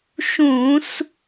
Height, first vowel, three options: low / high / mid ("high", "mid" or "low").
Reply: high